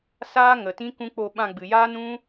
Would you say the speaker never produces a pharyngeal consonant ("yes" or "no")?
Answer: yes